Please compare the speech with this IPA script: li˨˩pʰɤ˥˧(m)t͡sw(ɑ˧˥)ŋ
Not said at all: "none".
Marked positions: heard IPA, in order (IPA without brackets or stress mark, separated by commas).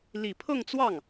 ŋ, ɑ˥˩